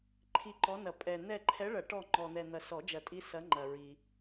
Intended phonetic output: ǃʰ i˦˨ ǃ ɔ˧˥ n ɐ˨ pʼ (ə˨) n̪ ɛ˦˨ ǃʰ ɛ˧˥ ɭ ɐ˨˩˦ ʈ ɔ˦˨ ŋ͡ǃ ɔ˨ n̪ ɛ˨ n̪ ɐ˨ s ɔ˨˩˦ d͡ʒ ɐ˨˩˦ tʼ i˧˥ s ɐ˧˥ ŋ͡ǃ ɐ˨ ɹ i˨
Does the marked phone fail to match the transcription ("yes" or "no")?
yes